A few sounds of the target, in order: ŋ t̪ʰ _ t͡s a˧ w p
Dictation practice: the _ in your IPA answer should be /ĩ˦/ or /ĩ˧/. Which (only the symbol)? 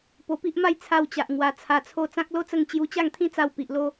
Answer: ĩ˦